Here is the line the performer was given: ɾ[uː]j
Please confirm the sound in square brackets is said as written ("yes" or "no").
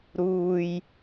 yes